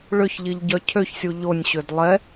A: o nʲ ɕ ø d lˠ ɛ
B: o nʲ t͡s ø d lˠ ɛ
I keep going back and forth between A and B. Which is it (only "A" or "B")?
A